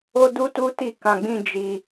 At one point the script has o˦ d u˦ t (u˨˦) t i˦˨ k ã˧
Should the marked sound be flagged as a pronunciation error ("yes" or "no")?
yes